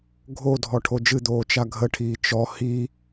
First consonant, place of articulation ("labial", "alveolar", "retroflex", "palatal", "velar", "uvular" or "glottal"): velar